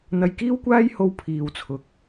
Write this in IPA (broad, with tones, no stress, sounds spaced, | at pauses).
n̪ ɐ˧ j k iː˥ w kʷ aː˥ j h o˧ w pʰ iː˨ w t͡sʰ ʊ˨ k̚